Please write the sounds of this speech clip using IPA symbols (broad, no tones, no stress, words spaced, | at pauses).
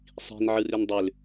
sˤi̤n ʕɯrʏndˤʏl